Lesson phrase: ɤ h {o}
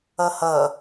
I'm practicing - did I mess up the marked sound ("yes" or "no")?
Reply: yes